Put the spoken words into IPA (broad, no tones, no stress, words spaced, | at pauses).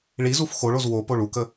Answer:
ɭizuf xoɭoz wo poɭukə